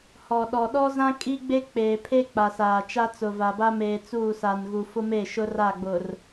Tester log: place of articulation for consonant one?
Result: glottal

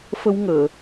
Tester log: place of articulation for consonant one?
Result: labial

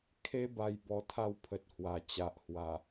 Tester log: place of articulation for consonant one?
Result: velar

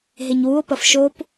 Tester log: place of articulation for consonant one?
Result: glottal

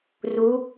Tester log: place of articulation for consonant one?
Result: alveolar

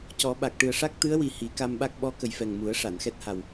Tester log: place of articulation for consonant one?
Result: palatal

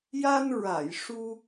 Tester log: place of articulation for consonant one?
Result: palatal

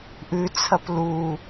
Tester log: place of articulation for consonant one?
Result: glottal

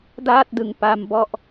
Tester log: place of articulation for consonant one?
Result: alveolar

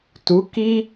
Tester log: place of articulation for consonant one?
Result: alveolar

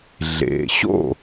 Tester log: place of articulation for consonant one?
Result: alveolar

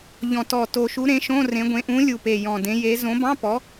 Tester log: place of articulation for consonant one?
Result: palatal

